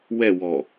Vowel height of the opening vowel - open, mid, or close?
mid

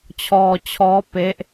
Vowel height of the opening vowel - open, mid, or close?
mid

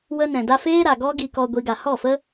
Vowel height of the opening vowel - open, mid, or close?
mid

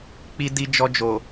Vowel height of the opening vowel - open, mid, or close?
close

